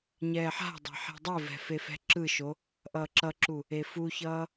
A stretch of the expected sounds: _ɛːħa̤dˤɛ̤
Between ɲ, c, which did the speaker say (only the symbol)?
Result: ɲ